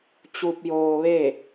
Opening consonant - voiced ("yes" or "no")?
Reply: no